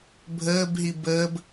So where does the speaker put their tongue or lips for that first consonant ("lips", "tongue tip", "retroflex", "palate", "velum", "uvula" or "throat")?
lips